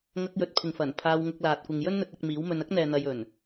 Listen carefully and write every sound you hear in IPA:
ŋ ɐ˧ k̚ j ɵ˨˥ t̚ pʰ ɪ˨ ŋ f ɐ˨˩ n pʰ aː˧ w ŋ ʊ˧ k̚ l aː˨ t̚ kʷ ɪ˨ ŋ j ɵ˥ n n̪ ɵ˧ t̚ ɐ˧ k̚ m iː˨˥ w m ɵ˧ n ɐ˥ k̚ n̪ ɛː˨ n̪ ɐ˧ j ɵ˨˩ n

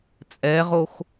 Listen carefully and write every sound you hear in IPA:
t͡sʼ ɛ ʁ o x

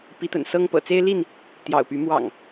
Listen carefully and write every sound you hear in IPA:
p i˨˦ t̪ ə̰˨˩ n s ɤ˦ ŋ p ɤ̰˨˩ t͡s e˦ ɪ̯ l i˥˨ n | t̪ j ɑ̰˨˩ ʊ̯ p y˨˦ m w ɑ̰˨˩ ŋ

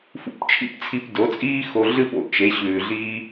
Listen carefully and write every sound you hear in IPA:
f ṵ˧ p t͡ʃʰ ḭ˥ p t͡sʰ i˧ p d o˩˥ t͡sʼ iː˥ x o˧ ɮ ɨ˥˧ p o̰˧˩ t͡ʃ e˩˥ ɕ ʉː˩ ɮ i˧

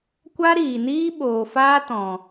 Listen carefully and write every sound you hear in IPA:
kʷ a˦ ɾ iː˨ n iː˦ ɓ oː˨ f aː˦ t ɔ̃˨

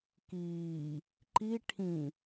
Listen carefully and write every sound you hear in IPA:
k iː | ǃ i ʈʰ ĩ

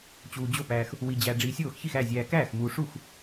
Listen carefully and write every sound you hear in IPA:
t͡ɕ uː˨ d͡ʑ o˥˩ p æː˨ x | w i˨ d͡ʑ æ˨ ɖ͡ʐ iː˨ sʲ oː˥˩ x ç i˥˩ x æ˥˩ zʲ æː˨ k æː˥˩ x m uː˨ ʂ u˥˩ x

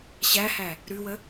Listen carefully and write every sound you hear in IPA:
ɕ æ h æ | ɾ ʉ w ə

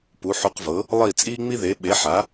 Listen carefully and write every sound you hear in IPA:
p u˩˥ ħ u˧ q v ɤ˩˥ | lˠ i˥˩ t͡sʼ iː˥ ŋ͡m i˥ ð e˩˥ ɓ e˩˥ ħ a˩˥

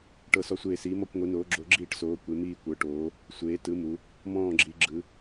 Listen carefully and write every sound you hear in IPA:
ʈ ɤ˥˧ s ɔ˥˧ sʷ eː˥˧ s iː˧˥ m ɔ˥˧ kʷ ŋʷ i˧˥ n oː˧˥ ɡ͡ǁ o˧˥ ɡ͡ǁ iː˥˧ ʈ s oː˧˥ kʷ e˧˥ m iː˥˧ kʷ ɤ˧˥ ʈ oː˧˥ | sʷ eː˧˥ t ɯ˧˥ m u˧˥ | m ɔ̃ː˥˧ ɡ͡ǁ i˧˥ ɡ͡ǁ ɯ˧˥

